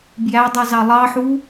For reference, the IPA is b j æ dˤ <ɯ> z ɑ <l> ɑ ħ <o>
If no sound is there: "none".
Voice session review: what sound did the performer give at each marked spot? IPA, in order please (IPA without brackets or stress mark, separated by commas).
u, lˠ, u